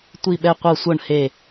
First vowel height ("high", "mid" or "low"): high